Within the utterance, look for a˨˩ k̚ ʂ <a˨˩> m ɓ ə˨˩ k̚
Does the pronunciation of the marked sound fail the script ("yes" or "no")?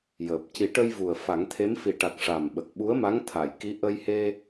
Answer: no